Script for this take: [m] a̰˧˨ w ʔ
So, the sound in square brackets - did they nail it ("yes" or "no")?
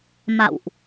yes